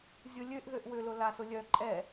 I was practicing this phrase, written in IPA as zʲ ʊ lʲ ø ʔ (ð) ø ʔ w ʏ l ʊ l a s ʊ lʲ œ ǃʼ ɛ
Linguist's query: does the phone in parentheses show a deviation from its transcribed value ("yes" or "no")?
no